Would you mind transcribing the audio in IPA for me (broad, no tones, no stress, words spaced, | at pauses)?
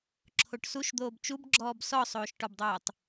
ǁʰoʈsuʃd̪oːb t͡ʃubɡ͡ǁɔːb sɔsˤoːʃʈɔbdˤoːtˤ